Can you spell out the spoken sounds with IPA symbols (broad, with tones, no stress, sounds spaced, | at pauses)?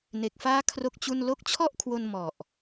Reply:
n e˨˩ k̚ f aː˦˥ kʰ r o˥˩ k̚ t͡ɕ u˥˩ n l o˦˥ k̚ t͡ɕʰ ɔ˥˩ ʔ kʰ w o˧ n m ɔ˨˩ ʔ